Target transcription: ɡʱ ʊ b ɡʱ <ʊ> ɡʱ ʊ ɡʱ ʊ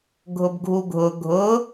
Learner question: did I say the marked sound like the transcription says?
no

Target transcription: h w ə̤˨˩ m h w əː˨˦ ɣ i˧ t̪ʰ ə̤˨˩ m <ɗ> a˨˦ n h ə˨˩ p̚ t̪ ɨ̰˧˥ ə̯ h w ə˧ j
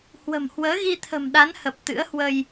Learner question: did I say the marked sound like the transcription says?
yes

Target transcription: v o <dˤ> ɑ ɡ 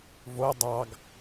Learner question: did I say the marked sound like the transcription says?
yes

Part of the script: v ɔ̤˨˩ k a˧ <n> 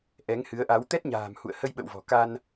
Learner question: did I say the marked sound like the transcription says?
yes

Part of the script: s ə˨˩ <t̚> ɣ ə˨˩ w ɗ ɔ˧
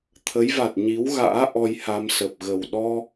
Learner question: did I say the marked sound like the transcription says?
no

